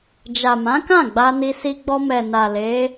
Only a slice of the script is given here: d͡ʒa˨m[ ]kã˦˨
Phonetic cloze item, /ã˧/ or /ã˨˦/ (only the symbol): ã˨˦